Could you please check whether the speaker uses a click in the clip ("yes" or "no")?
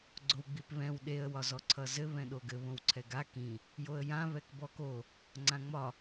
yes